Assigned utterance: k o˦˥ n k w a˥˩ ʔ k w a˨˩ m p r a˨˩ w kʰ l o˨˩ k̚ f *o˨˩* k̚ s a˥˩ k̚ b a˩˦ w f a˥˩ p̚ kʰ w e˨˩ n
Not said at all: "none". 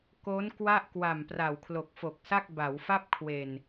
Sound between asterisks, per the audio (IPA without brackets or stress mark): o˨˩